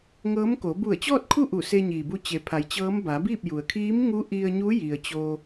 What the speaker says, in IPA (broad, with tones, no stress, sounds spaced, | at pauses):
ŋ ɤː˧˥ m k o˩˧ b u˧˩ ə̯ t͡ɕ ɔː˥˨ t̚ kʰ u˥˨ ʔ u˧˩ s e˧ ɲ iː˩ b u˧ t͡ɕ e˩˧ pʰ a˩˧ j t͡ɕ ɤː˧˥ m b a˩˧ b iː˥˨ p̚ j u˩ ə̯ kʰ iː˧˥ m ŋ u˧˥ ʔ i˧ ə̯ ɲ u˧˥ j i˩ ə̯ t͡ɕ oː˧